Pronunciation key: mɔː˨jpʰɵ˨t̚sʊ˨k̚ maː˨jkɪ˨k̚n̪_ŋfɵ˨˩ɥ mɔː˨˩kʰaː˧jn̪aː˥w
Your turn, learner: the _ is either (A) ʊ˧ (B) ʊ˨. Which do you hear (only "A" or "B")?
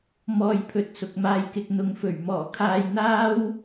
B